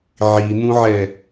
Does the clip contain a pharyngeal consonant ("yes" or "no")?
yes